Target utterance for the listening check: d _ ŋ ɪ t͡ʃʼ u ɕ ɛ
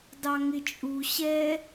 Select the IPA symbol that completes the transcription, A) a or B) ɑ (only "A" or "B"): B